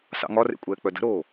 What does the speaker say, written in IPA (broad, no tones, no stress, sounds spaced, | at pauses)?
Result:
s ɑ̰ ŋ ɒ r ḛ kʷʼ ɛː k͡p œ d ə̤ ɾ oː